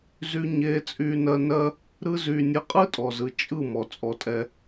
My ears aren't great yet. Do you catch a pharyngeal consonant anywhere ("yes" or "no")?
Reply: no